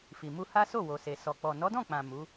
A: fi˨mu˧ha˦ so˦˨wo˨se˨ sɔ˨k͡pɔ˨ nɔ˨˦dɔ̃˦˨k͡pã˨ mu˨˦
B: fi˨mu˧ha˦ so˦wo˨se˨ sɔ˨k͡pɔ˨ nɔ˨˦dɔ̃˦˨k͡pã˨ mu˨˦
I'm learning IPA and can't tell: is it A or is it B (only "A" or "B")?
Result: A